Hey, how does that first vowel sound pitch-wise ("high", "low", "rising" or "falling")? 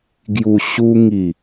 low